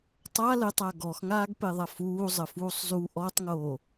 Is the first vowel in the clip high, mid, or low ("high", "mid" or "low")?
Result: low